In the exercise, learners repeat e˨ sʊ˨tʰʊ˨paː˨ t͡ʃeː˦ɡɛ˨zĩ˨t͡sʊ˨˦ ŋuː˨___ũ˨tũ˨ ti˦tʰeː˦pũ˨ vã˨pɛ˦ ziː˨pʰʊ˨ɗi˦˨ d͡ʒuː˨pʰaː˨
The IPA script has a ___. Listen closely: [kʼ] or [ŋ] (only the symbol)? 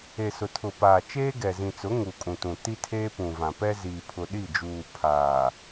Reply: kʼ